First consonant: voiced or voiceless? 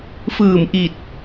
voiceless